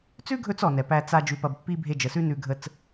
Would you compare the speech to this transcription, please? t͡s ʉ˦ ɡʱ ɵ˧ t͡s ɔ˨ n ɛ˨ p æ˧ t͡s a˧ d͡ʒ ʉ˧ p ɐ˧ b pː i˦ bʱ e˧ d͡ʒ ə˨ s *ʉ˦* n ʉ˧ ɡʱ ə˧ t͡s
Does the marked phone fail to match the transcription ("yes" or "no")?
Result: no